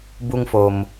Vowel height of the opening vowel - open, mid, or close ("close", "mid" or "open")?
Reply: close